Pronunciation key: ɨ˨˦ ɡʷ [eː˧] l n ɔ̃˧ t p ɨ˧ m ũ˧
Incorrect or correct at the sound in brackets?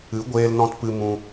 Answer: correct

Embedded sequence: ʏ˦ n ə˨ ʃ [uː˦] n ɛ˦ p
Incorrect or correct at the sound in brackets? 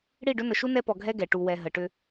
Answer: incorrect: u˦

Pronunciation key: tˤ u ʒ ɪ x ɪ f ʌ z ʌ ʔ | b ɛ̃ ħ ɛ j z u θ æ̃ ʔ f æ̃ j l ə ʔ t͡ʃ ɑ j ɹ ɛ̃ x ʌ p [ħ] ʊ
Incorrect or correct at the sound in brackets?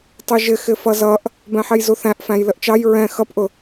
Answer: incorrect: ʔ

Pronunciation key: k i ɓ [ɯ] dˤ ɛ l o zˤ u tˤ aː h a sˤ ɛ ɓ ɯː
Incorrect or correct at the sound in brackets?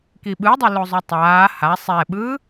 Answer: correct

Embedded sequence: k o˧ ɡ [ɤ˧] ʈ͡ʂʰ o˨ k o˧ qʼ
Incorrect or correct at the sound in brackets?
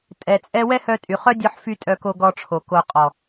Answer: incorrect: ɔ˧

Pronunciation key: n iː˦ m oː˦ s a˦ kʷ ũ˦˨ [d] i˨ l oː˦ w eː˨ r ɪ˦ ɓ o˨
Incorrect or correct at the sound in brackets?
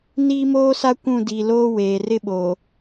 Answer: correct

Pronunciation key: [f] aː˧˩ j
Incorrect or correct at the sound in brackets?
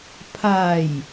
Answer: incorrect: pʰ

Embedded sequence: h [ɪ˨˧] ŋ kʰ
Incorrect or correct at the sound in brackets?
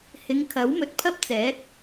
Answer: correct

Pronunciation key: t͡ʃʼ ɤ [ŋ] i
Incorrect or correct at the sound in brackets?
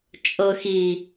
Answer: incorrect: x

